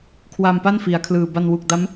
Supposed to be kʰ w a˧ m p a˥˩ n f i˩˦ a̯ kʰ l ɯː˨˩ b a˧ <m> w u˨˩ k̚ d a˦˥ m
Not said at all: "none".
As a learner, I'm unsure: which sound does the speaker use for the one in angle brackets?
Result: n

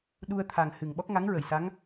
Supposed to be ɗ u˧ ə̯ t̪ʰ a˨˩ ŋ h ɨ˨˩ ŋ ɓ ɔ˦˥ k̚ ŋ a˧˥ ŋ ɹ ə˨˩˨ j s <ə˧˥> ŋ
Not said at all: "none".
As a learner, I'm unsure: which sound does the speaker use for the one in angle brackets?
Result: a˧˥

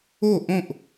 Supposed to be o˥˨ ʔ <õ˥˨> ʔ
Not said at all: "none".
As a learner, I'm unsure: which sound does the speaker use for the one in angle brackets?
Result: õ˥˨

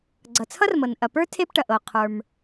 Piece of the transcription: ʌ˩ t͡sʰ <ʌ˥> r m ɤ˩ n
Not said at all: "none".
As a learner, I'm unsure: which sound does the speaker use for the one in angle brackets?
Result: ʌ˥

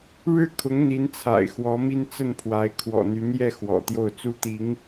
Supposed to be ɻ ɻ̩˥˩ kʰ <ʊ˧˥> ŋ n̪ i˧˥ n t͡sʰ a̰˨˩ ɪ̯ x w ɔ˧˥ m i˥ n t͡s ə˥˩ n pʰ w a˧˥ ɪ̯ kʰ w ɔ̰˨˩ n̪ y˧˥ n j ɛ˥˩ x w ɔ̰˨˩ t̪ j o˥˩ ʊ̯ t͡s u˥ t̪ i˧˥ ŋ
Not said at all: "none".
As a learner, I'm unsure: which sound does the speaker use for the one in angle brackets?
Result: ʊ˧˥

